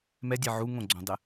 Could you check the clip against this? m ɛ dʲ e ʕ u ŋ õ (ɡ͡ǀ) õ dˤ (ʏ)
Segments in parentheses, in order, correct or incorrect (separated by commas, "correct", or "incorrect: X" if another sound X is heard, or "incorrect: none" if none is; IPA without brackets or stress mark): correct, incorrect: ɪ